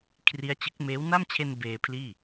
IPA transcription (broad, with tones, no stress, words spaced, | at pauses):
kʰri˦˥a̯t͡ɕɯ˦˥k̚ meː˦˥w na˥˩mt͡ɕʰe˧n beː˧pʰliː˥˩